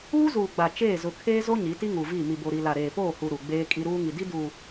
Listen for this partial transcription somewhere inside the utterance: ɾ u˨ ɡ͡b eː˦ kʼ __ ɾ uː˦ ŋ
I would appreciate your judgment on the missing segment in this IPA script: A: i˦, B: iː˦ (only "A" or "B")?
A